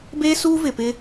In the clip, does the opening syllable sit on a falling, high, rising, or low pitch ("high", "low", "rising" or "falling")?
high